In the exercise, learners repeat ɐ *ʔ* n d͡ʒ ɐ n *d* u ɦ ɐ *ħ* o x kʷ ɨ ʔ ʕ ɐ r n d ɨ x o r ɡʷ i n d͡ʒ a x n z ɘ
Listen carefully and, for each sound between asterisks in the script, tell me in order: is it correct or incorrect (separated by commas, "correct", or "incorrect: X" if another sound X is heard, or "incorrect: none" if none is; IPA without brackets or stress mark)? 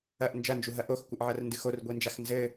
correct, incorrect: d͡ʒ, incorrect: ʔ